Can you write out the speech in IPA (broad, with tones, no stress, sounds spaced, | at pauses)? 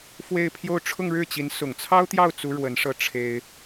f w e˥˧ ɪ̯ pʰ j o˥˧ ʊ̯ ʈ͡ʂʰ ʊ˥˧ ŋ ɻ ɻ̩˥˩ t͡ɕ i˧˥ n s ʊ˨˩ ŋ t͡sʰ ɑ˥ ʊ̯ t̪ j ɑ˥˩ ʊ̯ t͡s u˥ ɻ w ə˧˥ n ʂ ɤ˥˩ ʈ͡ʂʰ e˥ ɪ̯